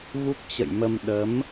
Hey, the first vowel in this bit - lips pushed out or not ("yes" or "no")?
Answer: yes